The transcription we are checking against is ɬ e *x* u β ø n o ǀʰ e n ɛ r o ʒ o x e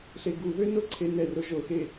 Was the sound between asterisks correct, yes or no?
no